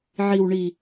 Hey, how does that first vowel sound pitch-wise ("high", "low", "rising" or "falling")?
low